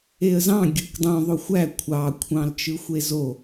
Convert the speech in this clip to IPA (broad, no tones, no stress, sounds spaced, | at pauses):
e ə̯ z ɑ̃ ɡʲ ɯ k dˤ ũ ðˤ o xʷ æ kʷʰ ɑ kʷʰ ɑ̃ l t͡ʃ ɯ xʷ e z o